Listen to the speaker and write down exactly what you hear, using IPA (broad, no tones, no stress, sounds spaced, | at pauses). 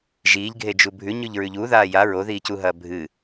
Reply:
ʒ iː ʎ ɡʱ e d͡ʒ u bʱ ʉ ɲ ʉ ʎ ɹ ʉ ʎ u ð aː j a ɹ o ð iː c u ɦ ɐː bʱ ɨ